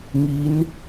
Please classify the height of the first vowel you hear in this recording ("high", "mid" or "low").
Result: high